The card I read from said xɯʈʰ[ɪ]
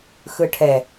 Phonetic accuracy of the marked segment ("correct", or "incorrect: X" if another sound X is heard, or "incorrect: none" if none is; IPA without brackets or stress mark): incorrect: ɛ